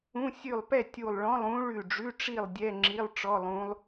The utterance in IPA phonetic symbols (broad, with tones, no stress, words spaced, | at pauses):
ũ˧˥˧ sʲʉ˧˩lˠpɛ˥˨ tʲu˧˩lˠɭɔ̃˧˥˧lˠ ũ˧˥ ɭʉ˧˩ɖ͡ʐʉ˧˥˧ʈ͡ʂi˥˨lˠ dʲɛ˧˥˧ŋ͡ǁi˧˥˧lˠ ʈ͡ʂɔ˧˥˧lˠũ˧˥lˠ